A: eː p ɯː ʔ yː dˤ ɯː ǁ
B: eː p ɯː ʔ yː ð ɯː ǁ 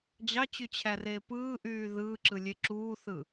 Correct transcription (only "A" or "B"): B